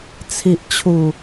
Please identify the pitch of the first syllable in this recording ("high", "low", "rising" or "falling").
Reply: low